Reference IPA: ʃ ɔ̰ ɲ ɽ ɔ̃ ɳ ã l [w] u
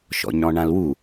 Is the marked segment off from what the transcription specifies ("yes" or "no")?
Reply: no